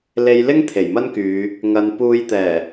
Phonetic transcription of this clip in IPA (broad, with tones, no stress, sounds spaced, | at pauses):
l e˨˧ j l ɪ˥ ŋ t̪ʰ e˨˩ j m ɐ˥ n k yː˨˧ | ŋ ɐ˨ n p uː˨˧ j t̪ ɛː˨˩